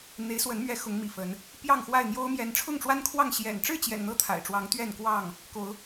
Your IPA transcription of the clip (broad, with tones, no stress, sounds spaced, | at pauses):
n̪ e˨˦ ɪ̯ s w ə˨˦ n m ɥ ɛ˨˦ x ʊ˨˦ ŋ m ḭ˨˩ f ə˨˦ n | p j ɑ˥˨ ŋ x w a˥˨ ɪ̯ n̪ j o˦ ʊ̯ m j ɛ˨˦ n ʈ͡ʂʰ ʊ˥˨ ŋ ʈ͡ʂ w a˦ n kʰ w ɑ˥˨ ŋ ɕ j ɛ̰˨˩ n ʈ͡ʂ ɻ̩˥˨ t͡ɕ j ɛ̰˨˩ n n̪ ɤ˦ t̪ʰ a̰˨˩ ɪ̯ ʈ͡ʂ w ɑ˨˦ ŋ t̪ ɥ ɛ˥˨ n k w ɑ˥˨ ŋ | k o˨˦ ʊ̯